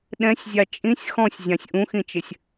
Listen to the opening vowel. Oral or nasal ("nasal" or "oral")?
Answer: nasal